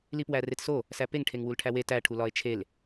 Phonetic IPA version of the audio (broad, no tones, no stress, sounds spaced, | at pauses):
l i p w æ r e t s o | s æ p e ŋ ʈʰ e ŋ w u l ʈʰ æ w e t æ ʈʰ u l ɒ e̯ t͡ʃʰ e l